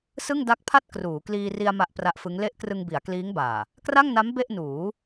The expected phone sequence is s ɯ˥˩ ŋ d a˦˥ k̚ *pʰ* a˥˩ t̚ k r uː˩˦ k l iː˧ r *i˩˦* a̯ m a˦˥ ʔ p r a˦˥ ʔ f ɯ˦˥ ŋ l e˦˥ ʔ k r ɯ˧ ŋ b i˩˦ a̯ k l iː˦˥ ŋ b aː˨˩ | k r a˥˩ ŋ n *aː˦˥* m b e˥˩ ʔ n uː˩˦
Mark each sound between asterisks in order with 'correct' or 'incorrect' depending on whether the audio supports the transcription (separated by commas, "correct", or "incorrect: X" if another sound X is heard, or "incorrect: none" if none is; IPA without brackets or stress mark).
correct, incorrect: i˧, incorrect: a˦˥